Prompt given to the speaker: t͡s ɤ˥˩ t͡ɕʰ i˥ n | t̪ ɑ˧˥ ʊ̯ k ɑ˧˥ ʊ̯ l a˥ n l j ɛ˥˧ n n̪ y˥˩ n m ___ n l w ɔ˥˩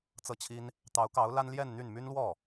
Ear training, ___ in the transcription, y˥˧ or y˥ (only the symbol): y˥